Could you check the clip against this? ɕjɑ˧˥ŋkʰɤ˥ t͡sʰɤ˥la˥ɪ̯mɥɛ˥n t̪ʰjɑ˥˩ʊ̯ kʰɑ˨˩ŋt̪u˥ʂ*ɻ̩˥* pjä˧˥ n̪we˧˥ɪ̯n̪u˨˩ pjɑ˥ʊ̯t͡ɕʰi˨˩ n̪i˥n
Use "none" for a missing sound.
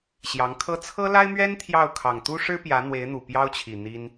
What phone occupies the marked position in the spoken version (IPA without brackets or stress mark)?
ɻ̩˥